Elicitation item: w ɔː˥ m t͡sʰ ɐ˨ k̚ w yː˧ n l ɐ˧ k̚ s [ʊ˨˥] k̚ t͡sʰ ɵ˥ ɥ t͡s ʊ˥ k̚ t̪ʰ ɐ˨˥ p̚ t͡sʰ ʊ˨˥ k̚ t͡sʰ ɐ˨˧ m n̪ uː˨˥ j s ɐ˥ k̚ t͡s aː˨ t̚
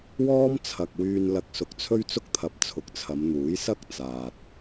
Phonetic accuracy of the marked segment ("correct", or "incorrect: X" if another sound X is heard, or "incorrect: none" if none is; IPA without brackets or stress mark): correct